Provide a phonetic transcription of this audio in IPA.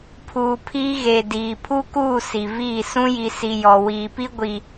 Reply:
pʰ uː˨ pʰ iː˦ ɣ e˨ d iː˨ pʰ u˦ k uː˦˨ s i˨ v iː˦˨ s ũ˦ j i˨ s i˨ j ɔ˨ w iː˨ p i˦ ɡʷ i˨

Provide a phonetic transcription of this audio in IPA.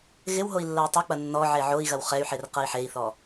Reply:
ɣ ɪ w ɦ o i̯ lː ɐ i̯ tˤ ɐ k͡p ɐ nː ɔ ʕ e ʕ o i̯ ɣ ɐ w χ ɛ y̯ ħ e r q ɐ i̯ ħ e i̯ θ ɔ

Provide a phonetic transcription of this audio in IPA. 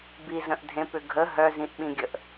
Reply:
b i z ə̃ ʔ dʱ ẽ p ʏ ɡʱ ə ɦ œ z ĩ ʔ ɓ ĩ ɡʲ ə ʔ

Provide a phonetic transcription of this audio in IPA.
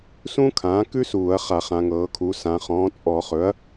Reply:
s ũ˥ kʰ ãː˩˥ k ʉ˥ s uː˧˩˧ ɐ̯ χ a˧˩˧ χ ã˩˧ ŋ ɤː˩˧ kʰ u˩˧ s ã˩˧ χ ɔ̃ː˩˥ t͡sʼ ɔ˧˩˧ χ ɵ˩˥ ɐ̯

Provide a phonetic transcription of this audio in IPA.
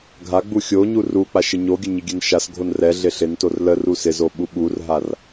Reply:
ɡʱ a ɡ͡b u xʲ o ɲ u r u k͡p a ʃ ɪ ɲ o ɡʲ ə ɲ ɪ ɡʲ ɛ n ʃ a s ɡʱ o n r ɛ ɮ ɪ ɬ ɪ n t o r l ə r u s ɪ z o ɓ u ɓ u r ɦ a r

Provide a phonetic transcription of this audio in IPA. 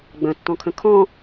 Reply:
ɡ͡b ə̃ tː ɔ̃ kʰ ə̃ kʰ ɔ̃

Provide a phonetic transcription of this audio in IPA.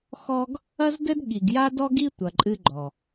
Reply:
x ɔ˦ ɡ | ɐ˦ z d ɘ˦ d ɠ i˨ ɡ j a˦ d ɔ˦ ɡ i˦ tʷ ɐ˨ ǃʼ ɨ˦ ɡ͡ǃ ɔ˨

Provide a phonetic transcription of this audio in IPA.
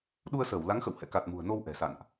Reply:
ɗ u˧ ə̯ s əː˧˩ w l a˨˦ ŋ x ə̰˧˨ w h ɛ̰˧˨ k a˨˩ t̚ m ṳ˨˩ ə̯ n o˧ w ʔ ɛ̤˨˩ s a̰˧˨ n ʔ

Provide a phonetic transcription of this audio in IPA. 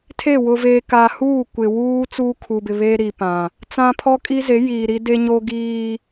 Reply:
tʰ e˦˨ w ʊ˨ v eː˨ k aː˨ h uː˦˨ kʷ ɪ˨ w uː˦ t͡s uː˦ kʰ u˨ b ɪ˨ β eː˦ ɾ i˨ p ã˨ | t͡s ã˦ pʰ ɔ˦ kʼ i˦ z e˨˦ j iː˨ ɾ i˦ d e˦ ɲ o˦ ɡ iː˦

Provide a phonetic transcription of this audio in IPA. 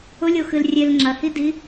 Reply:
ʊ lʲ o x ɨ l rʲ e l ŋ͡ǁ ɐ h i d i

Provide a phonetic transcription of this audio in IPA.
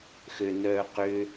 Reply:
x ø n œː q ʏ

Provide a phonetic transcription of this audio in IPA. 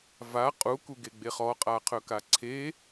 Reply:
v a qʼ u k u ɡ e ɡ͡b e χ ɔ qʼ a qʰ ɵ k a ǀʰ e

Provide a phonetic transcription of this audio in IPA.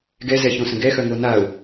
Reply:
ɡ ɛ z ɛ ç õ s ə̃ ɡ ɛ x œ ŋ o n a ʊ̯

